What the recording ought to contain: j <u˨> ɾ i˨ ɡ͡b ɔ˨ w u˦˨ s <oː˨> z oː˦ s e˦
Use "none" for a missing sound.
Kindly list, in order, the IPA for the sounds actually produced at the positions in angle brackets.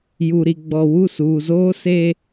u˨, uː˨

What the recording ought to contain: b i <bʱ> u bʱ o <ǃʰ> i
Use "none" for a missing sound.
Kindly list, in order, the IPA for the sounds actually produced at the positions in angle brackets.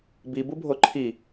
b, ǃʰ

